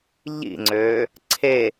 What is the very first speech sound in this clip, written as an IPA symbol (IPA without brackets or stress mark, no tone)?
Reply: ʎ